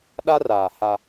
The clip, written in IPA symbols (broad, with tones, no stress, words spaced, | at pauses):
ɗa˦raː˨ ha˦